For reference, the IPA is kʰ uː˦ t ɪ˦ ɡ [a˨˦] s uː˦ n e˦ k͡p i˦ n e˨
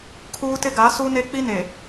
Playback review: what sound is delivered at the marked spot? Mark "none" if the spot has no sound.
a˨˦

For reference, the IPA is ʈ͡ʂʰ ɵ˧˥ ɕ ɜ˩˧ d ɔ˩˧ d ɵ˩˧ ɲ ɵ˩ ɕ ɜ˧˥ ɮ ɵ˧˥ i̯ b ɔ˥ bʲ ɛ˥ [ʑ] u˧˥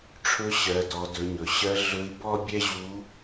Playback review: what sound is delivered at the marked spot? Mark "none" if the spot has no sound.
ʑ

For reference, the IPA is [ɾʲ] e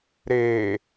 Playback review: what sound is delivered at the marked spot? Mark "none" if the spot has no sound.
ɾ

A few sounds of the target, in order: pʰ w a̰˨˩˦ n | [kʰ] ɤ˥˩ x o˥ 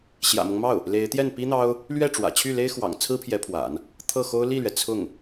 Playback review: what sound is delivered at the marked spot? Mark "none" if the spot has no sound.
t̪ʰ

